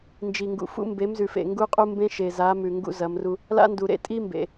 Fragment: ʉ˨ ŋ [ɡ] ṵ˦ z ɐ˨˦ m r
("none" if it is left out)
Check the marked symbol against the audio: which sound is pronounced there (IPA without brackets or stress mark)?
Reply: ɡ